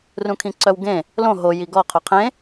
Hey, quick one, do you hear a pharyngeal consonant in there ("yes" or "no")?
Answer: no